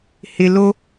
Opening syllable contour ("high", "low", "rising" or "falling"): low